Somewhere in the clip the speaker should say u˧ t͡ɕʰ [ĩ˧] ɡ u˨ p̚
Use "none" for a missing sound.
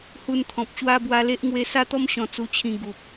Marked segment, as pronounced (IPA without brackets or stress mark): ĩ˧